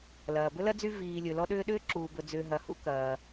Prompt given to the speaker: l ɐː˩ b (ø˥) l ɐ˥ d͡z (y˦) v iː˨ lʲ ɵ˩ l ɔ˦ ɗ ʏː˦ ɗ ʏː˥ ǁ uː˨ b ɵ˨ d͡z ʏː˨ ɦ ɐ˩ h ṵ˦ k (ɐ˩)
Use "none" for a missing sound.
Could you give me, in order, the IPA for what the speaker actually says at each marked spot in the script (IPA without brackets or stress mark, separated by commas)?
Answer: ɵ˥, y˦, ɐː˩